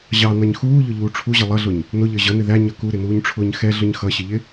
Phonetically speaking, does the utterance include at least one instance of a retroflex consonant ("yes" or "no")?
yes